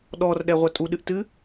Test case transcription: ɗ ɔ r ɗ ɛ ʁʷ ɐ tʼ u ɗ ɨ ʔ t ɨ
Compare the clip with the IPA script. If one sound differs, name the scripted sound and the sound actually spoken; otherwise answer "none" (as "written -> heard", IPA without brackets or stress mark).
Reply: none